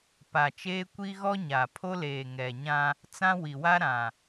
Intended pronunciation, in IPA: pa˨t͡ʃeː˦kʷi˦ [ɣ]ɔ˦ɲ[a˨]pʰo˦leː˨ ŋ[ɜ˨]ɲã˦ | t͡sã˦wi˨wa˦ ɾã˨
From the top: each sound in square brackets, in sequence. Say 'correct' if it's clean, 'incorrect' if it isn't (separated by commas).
correct, correct, incorrect